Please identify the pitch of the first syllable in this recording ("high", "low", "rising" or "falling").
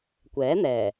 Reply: rising